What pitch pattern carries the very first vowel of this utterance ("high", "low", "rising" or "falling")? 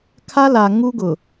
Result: high